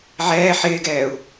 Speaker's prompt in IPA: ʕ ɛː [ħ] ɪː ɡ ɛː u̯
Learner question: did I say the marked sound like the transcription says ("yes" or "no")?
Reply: yes